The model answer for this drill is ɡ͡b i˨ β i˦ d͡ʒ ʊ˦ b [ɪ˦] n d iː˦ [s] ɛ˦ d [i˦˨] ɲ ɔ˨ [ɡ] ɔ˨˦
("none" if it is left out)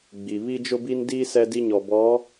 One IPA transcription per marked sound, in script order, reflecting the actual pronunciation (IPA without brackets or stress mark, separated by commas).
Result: i˦, s, i˦, b